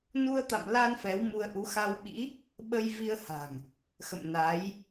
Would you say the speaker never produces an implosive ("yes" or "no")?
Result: no